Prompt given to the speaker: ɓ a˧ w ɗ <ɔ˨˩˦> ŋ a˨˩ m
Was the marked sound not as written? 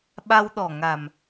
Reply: yes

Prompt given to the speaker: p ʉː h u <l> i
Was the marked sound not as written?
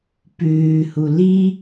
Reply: no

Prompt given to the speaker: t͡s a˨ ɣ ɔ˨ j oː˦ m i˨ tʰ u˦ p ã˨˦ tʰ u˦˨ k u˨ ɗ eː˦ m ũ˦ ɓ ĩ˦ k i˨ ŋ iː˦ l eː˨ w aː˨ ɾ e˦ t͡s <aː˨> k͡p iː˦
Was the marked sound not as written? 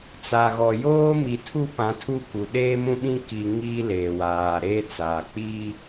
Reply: no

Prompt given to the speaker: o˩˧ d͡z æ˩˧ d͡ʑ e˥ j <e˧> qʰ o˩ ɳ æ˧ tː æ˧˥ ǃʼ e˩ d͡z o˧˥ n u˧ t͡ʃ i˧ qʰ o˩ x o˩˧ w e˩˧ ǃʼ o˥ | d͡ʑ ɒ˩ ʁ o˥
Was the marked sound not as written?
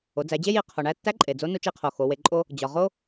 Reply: yes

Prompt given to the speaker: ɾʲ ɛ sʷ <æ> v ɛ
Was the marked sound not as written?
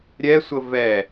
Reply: yes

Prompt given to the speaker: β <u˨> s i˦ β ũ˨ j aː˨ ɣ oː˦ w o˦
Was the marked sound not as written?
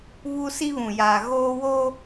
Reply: yes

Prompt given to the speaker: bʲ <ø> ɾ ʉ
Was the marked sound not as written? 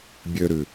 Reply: no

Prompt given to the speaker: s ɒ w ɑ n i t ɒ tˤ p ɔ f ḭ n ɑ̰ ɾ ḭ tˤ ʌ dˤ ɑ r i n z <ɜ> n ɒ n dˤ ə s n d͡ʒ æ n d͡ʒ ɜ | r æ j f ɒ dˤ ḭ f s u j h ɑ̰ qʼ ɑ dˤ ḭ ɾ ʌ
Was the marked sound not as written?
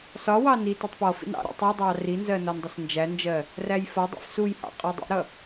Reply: no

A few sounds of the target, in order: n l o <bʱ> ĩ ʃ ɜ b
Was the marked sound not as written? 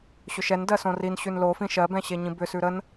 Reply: yes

